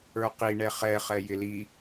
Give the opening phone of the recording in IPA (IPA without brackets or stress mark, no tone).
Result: ə˞